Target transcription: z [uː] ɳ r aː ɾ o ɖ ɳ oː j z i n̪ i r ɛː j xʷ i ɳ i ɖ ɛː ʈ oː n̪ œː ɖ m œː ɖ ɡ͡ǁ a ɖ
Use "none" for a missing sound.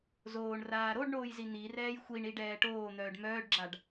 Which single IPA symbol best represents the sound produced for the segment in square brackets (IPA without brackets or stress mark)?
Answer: oː